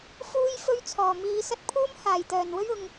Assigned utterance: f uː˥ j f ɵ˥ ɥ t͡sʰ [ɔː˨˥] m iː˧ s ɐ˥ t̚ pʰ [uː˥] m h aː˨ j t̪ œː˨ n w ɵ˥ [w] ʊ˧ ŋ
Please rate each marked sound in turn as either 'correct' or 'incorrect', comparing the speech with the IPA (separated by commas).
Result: incorrect, correct, incorrect